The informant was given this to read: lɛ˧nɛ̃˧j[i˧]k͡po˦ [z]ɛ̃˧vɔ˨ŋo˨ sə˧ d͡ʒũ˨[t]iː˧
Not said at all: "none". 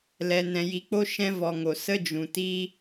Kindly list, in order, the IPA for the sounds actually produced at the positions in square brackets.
i˧, ʃ, t

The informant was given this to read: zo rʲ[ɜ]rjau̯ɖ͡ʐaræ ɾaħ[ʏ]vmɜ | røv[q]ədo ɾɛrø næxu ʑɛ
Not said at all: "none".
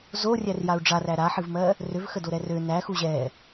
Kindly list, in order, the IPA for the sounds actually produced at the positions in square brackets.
æ, ɨ, x

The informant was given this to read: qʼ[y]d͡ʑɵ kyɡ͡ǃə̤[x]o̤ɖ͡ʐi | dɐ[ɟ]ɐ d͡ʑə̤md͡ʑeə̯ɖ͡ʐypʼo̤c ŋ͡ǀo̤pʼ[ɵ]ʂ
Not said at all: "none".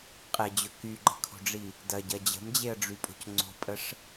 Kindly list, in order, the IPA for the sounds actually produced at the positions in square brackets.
e, kʰ, ɟ, ə

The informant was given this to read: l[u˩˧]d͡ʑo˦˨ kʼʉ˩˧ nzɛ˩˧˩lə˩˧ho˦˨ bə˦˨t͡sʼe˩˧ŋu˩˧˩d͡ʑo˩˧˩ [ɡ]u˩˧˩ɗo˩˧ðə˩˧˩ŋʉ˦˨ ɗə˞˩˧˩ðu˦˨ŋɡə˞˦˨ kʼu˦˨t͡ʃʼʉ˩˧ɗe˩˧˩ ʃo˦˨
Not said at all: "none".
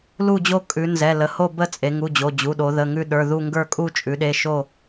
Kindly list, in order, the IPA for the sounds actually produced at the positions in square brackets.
u˦˨, d͡ʑ

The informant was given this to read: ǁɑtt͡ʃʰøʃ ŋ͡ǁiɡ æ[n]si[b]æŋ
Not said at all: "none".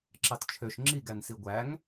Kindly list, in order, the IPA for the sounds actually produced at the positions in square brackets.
n, ɡʷ

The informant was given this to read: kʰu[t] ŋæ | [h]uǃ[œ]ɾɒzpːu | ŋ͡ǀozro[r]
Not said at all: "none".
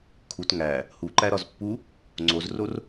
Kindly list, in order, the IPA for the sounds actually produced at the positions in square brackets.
t, h, æ, r

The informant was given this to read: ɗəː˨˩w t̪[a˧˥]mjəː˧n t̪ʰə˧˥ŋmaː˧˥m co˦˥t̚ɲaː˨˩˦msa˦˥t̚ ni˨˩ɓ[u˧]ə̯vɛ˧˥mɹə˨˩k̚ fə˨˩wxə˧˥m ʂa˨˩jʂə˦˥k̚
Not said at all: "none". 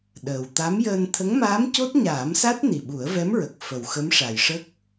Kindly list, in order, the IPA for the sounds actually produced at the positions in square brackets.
a˧˥, u˨˩˦

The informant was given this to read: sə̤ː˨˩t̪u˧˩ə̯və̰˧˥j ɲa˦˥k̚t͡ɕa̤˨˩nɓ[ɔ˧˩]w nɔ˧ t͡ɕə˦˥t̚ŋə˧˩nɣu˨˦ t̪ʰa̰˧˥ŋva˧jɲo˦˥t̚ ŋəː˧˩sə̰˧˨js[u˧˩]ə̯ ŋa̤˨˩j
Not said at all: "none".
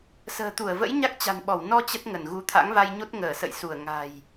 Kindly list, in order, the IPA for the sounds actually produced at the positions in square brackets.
ɔ˧˩, u˧˩

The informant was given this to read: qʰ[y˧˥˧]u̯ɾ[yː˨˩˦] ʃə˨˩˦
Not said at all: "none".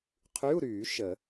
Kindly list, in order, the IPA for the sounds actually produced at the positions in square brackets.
y˧˥˧, yː˨˩˦

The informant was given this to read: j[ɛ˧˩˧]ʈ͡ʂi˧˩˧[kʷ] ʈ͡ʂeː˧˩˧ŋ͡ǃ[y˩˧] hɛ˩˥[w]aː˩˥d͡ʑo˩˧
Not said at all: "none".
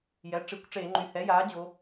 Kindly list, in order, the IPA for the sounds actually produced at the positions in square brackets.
ɛ˩˥, kʷ, y˩˧, j

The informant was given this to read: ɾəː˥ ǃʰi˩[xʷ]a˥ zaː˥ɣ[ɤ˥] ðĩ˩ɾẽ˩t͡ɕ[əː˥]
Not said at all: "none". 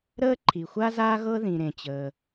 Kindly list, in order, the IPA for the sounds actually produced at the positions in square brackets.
xʷ, ɤ˥, əː˩

